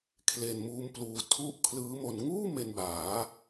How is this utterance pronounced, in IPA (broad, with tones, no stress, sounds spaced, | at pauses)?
kʰ l e˧ n m uː˦˥ m p l uː˧ tʰ u˥˩ ʔ kʰ l ɯː˦˥ m o˧ n ŋ uː˥˩ m e˧ n b aː˩˦